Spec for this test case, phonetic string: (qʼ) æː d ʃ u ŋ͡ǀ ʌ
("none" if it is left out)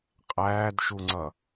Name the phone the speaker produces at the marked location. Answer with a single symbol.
qʼ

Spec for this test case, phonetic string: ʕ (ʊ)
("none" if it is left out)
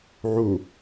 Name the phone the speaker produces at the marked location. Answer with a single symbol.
u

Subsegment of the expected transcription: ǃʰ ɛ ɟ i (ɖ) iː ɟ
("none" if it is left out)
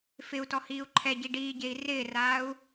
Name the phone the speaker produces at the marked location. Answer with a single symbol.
ɖ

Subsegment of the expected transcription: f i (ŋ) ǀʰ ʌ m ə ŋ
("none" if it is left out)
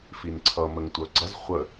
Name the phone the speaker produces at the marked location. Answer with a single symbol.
n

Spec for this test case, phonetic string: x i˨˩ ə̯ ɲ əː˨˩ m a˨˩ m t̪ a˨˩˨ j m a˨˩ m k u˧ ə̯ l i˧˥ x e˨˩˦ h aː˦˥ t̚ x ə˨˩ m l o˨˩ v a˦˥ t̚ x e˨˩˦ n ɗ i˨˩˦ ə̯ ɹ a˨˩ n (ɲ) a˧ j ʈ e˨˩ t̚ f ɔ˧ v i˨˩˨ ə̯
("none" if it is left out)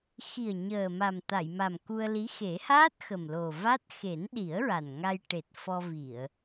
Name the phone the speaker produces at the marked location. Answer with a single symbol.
ŋ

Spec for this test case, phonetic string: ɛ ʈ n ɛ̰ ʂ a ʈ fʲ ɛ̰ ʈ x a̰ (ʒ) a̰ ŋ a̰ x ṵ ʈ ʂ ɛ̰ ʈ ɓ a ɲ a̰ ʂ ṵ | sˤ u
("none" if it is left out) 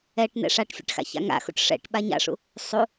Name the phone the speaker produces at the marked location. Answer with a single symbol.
ç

